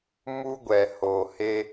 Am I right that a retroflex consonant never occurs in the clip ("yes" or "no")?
yes